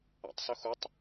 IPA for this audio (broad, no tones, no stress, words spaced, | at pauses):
a̰tˤsɵxutˤ